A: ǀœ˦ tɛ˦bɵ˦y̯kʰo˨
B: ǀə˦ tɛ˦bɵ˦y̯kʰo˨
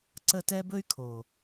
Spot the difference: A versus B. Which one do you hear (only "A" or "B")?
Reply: B